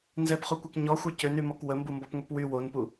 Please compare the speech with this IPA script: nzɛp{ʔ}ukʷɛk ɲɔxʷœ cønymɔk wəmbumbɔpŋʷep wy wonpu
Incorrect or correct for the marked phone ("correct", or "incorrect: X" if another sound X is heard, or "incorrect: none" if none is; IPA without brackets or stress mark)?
incorrect: χ